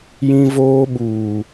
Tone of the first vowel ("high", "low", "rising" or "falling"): high